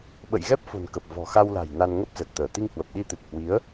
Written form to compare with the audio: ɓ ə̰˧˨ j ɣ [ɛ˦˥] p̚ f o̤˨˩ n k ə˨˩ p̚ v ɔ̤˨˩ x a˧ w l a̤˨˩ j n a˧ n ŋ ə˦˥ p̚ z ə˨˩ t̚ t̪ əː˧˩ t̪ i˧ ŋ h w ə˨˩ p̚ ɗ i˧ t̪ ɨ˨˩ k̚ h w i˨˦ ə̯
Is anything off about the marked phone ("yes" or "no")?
no